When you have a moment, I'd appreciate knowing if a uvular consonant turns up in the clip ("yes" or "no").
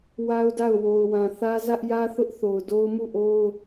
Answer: no